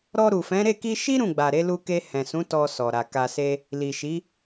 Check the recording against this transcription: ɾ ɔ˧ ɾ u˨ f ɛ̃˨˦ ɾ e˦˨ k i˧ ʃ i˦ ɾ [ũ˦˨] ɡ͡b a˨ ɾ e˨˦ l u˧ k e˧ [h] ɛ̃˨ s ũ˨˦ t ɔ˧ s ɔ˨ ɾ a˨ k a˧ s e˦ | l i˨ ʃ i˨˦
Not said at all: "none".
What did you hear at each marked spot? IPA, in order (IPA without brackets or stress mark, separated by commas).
ũ˦˨, h